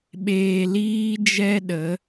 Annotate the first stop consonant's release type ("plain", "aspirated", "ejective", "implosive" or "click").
implosive